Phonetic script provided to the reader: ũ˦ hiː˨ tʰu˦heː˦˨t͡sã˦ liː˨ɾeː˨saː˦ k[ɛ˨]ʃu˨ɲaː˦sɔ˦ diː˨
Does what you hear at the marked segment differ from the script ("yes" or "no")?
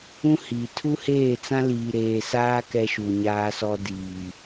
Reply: yes